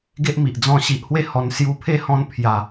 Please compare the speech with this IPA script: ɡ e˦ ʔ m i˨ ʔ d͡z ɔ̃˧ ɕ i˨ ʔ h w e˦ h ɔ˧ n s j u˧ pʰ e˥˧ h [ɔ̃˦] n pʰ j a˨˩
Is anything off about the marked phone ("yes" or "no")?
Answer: yes